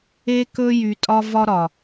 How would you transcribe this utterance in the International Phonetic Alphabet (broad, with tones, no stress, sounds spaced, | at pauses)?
e˦ k ɵ˦ j y˨ tʼ ɒ˦ v ɒ˦ ɾ ɒ˨